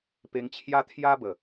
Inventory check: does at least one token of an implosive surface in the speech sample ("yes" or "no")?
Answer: no